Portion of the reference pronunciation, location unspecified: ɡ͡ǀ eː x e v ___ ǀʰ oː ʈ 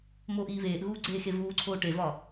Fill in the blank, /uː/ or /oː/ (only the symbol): uː